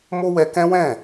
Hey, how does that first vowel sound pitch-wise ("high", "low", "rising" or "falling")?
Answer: high